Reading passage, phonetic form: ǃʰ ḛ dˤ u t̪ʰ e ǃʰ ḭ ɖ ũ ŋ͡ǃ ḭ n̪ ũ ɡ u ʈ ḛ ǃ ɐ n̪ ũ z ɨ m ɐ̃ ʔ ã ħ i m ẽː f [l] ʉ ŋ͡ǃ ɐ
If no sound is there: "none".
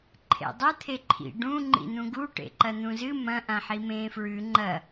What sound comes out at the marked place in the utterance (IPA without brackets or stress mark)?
ɹ